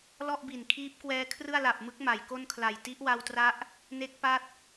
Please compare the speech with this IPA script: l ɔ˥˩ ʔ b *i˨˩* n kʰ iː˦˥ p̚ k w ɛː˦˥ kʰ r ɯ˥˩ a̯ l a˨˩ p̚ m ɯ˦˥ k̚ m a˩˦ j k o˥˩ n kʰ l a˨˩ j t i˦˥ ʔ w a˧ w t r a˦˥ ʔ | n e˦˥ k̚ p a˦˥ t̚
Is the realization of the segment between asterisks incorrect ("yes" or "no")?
no